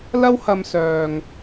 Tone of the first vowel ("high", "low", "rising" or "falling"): high